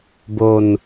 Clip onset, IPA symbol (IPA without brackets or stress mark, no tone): b